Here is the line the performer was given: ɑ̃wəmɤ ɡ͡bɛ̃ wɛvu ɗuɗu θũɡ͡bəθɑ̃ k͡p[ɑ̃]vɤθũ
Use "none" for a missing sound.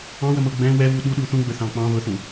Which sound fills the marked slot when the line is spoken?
ɑ̃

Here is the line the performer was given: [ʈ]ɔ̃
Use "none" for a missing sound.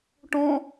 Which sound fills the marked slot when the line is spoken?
ʈ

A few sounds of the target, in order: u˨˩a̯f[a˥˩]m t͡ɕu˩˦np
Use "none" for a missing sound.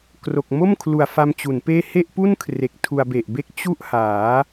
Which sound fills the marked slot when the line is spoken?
a˧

